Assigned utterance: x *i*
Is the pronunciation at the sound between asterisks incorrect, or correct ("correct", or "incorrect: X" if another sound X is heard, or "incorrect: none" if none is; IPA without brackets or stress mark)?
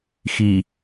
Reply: correct